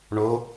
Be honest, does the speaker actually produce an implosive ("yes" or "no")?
no